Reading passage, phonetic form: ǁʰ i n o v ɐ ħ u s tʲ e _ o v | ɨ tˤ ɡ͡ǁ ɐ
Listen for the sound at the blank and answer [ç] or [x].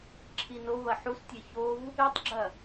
ç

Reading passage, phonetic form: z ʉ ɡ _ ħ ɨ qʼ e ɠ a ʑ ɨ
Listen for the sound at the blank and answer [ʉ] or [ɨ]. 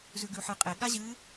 ʉ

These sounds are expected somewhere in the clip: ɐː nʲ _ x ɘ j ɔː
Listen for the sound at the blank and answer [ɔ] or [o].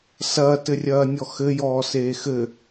ɔ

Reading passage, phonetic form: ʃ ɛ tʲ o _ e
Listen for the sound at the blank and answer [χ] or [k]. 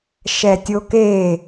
k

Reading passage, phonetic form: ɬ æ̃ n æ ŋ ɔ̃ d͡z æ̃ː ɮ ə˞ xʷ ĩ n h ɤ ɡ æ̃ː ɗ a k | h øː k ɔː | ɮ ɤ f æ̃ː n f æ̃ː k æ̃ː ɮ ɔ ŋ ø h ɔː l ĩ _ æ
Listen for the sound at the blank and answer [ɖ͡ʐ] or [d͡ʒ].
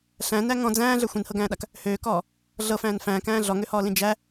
d͡ʒ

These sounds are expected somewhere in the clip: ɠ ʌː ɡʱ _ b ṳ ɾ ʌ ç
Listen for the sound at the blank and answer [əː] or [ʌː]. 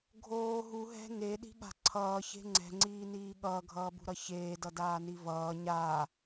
ʌː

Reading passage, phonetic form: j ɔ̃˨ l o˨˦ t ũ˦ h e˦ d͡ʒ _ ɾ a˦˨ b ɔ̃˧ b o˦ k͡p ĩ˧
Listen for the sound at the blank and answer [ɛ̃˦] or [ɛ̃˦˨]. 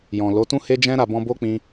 ɛ̃˦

